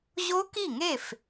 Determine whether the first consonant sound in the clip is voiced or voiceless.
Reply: voiced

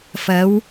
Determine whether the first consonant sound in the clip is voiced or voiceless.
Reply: voiceless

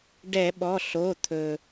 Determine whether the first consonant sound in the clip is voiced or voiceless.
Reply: voiced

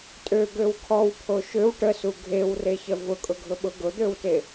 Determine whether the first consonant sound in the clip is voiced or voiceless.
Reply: voiceless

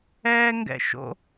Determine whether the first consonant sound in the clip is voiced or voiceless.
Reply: voiced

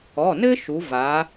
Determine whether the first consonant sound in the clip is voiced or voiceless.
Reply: voiced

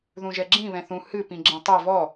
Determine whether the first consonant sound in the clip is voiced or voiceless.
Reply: voiced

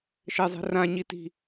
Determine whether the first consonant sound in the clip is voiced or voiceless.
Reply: voiceless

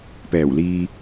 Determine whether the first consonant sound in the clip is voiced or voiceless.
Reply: voiceless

